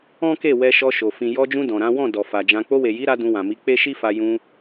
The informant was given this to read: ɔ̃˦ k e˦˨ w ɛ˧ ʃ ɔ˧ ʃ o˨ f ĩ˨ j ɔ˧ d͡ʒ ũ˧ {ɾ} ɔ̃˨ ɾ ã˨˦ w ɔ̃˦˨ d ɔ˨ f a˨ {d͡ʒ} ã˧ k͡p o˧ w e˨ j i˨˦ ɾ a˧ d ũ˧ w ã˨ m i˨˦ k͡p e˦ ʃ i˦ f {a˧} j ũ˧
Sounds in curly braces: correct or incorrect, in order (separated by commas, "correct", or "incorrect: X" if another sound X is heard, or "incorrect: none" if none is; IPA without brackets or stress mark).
incorrect: d, correct, correct